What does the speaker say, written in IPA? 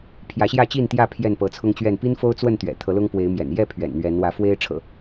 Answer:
pʰjä˨˦ɕjä˥˨t͡ɕi˥˨nt̪jä˥˨ pʰjɛ˥˨npɤ˨˦t͡sʰʊ˦ŋt͡ɕɥɛ˥˨n pi˦nfo˦ʊ̯t͡swə˥˨nt̪ɥɛ̰˨˩ t̪ʰɤ˨˦lʊ˦ŋ pwe˨˦ɪ̯mjɛ̰˨˩n jɛ˥˨ pʰɥɛ̰˨˩nn̪ɥɛ˨˦nwä˨˦ fwe˦ɪ̯ ʈ͡ʂʰɤ̰˨˩

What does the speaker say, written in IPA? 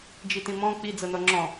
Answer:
d͡ʒitĩmɔ̃ k͡pi d͡zɤnɔŋ͡ǁɔ̃

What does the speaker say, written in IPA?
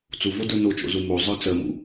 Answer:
t͡suvodə˞ not͡ʃo̰zu mozˤə˞ t͡sɜmṵ

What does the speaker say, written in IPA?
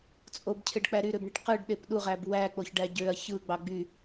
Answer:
t͡sʼobcʰeɖk͡pæ ɾyɾøbɳiʈ qɯɖɗep ɗuʁæb wæk͡poçɖæ ɟøɐ̯ çɯɡ͡bɑ ɡ͡by

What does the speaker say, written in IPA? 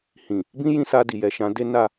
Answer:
hĩ˨ | bĩ˦ jĩ˧sa˧di˨jɛ˨ ʃã˨˦de˦ na˦˨

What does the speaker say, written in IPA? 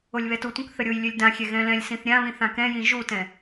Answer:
olʲβɛtutʷœ̃k θəɾʲojlʲølʲ dãxʲɛ ɣɛ̃lɛ̃lʲsĩθ ɾʲãβĩ θãkɛ̃jĩ ʒutɛ̃

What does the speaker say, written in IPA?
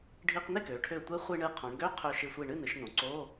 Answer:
ɖʱi˧qnɪ˥˨kø˩˧ʈʰø˧˩ tʷe˧˥χʷi˧ ɳɨ˧˩qʰõ˩˧ɳɡø˧˥˧ qʰø˧˩ʃɪ˧˩sʷi˧˩ ɳɨ˥˨ nɨ˩˧ʃnõ˩˧ǀo˧˥˧

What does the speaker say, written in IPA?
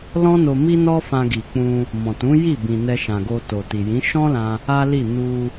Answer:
lɔ̃˦no˧ mi˦nɔ˦ fã˧ɡi˨k͡pũ˧ | mɔ̃˨tũ˨˦ ji˦˨bĩ˨ nɛ˧ʃã˨ɡo˧to˨ ti˨jĩ˨˦ ʃɔ̃˦lã˧ | a˦li˦˨ nu˧

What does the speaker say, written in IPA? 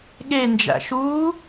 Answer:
ɠend͡ʒæ̰ ʃuː

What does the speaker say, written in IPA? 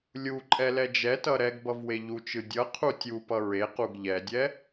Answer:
lʲu ǃʼɛlɛd͡ʒɛtʌ ɾɛɡ bʌvweʎut͡ʃɯ dʲʌ qʰutʲupʌ ɹequɡ ʎɛdʲɛ

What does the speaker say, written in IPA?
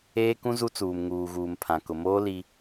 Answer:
eː˦kũ˦zu˦t͡suː˨m ŋuː˨ɣuː˨mpʰã˨ kʊ˨moː˦ li˦

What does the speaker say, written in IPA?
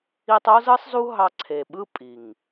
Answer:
i˧tˤo˦zɯ˦sˤzu˦ ɦɑ˧ǀʰe˨ɓɯ˦ pʼi˨ŋ

